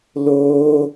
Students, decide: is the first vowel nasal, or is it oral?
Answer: oral